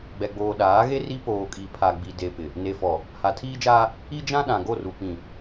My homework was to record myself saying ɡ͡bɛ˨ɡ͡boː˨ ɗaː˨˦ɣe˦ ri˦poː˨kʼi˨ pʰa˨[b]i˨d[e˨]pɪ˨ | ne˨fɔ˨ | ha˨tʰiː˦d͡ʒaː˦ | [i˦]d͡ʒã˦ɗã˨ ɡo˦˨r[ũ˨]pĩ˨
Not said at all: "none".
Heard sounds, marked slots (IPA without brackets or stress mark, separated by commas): ɡ͡b, e˨, i˦, u˨